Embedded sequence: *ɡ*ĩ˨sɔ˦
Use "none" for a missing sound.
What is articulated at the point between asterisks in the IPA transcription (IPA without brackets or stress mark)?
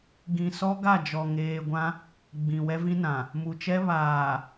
ɡ